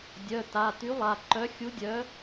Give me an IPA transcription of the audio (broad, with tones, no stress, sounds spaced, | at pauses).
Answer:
dʲ œ˩˧˩ t a˩˧˩ t y˨˥ lˠ a˩˧˩ ǃ œ˨˥ xʲ u˨˥ dʲ œ˨˥